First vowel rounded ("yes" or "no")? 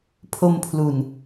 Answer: yes